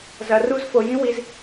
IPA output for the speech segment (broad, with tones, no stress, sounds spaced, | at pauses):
z ɐ˧ r u˦ z f o˧ j ĩ˦ w i˧ z